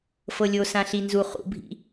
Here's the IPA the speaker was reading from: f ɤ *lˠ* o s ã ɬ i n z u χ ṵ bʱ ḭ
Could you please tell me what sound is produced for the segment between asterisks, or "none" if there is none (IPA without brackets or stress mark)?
lʲ